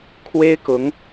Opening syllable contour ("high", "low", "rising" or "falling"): high